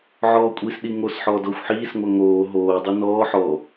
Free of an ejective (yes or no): no